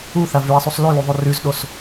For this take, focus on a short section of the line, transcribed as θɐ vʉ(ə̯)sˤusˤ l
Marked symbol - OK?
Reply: yes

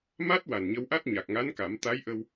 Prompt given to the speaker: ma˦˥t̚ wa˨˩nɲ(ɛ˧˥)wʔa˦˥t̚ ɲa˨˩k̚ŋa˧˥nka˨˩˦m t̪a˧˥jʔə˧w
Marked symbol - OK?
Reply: no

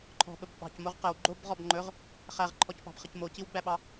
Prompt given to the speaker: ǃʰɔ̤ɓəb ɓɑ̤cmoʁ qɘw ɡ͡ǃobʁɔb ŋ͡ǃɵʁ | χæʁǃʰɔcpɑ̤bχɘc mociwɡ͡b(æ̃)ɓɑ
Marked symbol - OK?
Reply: no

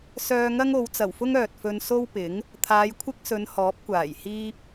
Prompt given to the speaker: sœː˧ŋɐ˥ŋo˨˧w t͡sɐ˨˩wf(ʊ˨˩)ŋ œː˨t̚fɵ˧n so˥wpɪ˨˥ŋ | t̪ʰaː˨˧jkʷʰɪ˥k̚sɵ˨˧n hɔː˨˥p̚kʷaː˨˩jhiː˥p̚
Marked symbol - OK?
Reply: no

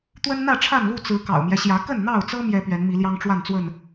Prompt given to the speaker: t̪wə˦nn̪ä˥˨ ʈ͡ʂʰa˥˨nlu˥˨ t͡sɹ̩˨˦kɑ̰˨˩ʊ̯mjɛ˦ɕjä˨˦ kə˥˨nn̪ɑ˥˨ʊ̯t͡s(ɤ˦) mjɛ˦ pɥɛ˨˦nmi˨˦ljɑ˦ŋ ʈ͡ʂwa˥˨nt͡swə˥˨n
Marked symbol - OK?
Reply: yes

